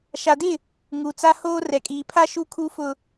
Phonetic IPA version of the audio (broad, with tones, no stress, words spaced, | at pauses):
ʃa˨dɪ˦˨ | ŋu˨t͡sa˦hoː˦ rɛ˨kʼiː˨pʰa˦ ʃu˦kʰu˦fʊ˦